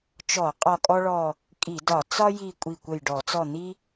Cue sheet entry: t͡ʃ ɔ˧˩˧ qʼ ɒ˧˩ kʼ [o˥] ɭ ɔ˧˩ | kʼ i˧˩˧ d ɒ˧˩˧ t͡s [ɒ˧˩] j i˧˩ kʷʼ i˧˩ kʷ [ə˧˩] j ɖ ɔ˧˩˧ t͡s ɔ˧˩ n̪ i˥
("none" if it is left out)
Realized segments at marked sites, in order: ɔ˥, ɒ˥, ə˧˩

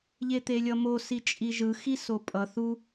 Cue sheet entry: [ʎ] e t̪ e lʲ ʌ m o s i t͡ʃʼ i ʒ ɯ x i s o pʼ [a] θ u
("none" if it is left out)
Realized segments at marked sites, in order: ʎ, ʌ

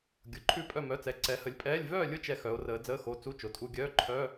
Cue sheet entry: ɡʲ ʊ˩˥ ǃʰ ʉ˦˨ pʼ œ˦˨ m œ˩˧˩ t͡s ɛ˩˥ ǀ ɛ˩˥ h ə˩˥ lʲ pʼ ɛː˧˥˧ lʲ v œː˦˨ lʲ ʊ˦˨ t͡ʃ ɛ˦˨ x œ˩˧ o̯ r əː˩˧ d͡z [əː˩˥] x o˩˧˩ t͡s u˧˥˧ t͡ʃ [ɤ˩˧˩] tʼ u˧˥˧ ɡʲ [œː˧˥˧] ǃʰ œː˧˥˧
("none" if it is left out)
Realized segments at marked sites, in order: əː˧˥˧, o˩˧˩, œː˧˥˧

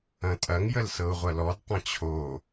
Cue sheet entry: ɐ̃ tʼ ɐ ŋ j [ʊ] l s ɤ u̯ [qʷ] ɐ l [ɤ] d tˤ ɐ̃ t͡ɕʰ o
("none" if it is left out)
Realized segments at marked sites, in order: ə, ʁʷ, ɔ

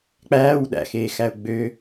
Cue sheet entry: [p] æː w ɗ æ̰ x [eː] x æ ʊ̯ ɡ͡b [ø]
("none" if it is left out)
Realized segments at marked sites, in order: k͡p, eː, ø

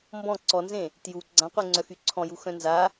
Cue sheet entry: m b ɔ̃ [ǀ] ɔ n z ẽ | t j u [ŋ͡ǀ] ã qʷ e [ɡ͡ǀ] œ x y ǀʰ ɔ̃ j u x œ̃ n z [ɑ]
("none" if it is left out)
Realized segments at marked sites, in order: ǀ, ɡ͡ǀ, ŋ͡ǀ, a

